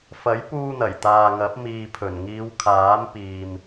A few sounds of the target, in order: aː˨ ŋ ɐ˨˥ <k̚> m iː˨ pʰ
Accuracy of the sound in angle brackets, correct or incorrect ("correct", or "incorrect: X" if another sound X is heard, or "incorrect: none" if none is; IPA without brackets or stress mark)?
incorrect: p̚